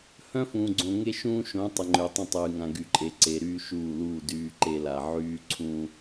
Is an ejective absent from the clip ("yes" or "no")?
no